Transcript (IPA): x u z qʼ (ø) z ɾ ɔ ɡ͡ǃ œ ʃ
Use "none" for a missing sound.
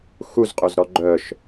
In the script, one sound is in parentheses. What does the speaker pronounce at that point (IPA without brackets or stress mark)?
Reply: ø